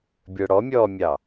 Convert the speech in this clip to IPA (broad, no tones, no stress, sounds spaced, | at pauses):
bʲ ə˞ ɽ ɔ mʲ ɔː mʲ ɑ